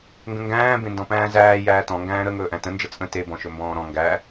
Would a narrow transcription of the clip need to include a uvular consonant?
no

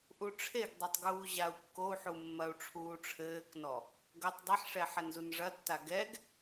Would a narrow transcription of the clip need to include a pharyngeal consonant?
yes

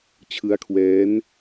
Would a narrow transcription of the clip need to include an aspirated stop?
yes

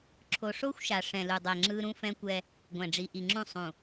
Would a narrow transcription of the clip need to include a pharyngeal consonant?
no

